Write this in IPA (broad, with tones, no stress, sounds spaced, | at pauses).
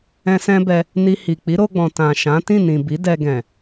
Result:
ɛ̃˧ s ɛ̃˦ b ɛ˧ | n i˧ h i˨ k͡p i˨˦ ɾ o˧ ɡ͡b ɔ̃˨ t ã˨ ʃ ã˨˦ t ĩ˦˨ n ĩ˨ b i˨˦ d ɛ˧ ɡ ɛ̃˨